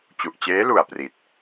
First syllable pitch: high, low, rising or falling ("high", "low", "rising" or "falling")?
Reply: low